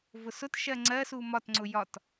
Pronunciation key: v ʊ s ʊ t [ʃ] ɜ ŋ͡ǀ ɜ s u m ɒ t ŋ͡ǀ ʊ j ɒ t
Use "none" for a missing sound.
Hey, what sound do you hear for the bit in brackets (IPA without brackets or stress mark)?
ʃ